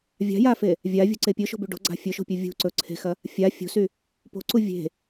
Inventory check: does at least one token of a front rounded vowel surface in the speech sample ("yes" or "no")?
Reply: yes